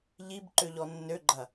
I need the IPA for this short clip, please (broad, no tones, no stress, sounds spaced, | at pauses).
ʎ i b ǃ ø ʎ ɔ nː ø ɡ͡ǃ ɐ